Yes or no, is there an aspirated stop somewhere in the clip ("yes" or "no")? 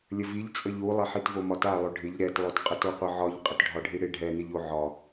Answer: no